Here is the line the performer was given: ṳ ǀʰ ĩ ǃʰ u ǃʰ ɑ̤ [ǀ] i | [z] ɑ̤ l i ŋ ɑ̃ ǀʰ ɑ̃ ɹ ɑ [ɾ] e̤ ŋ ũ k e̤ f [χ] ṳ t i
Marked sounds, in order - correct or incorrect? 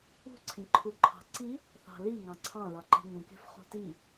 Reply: correct, incorrect: θ, incorrect: ǃ, correct

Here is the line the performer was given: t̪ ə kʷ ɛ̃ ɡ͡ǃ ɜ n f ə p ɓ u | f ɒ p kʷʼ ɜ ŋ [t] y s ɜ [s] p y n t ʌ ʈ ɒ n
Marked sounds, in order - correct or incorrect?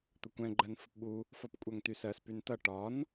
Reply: correct, correct

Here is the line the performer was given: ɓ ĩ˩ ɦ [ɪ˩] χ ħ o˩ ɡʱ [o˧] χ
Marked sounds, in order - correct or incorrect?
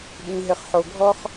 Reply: correct, incorrect: ɔ˧

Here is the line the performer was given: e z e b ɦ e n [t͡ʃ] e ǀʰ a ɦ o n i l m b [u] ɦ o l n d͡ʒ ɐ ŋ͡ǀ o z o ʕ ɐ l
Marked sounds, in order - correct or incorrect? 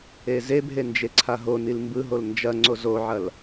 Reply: incorrect: d͡ʒ, incorrect: ɯ

